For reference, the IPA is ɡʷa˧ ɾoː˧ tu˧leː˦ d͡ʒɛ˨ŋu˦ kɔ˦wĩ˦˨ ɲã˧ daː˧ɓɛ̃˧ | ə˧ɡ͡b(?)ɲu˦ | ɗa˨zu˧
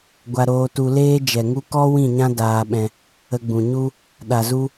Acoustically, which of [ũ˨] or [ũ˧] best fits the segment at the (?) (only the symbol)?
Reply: ũ˨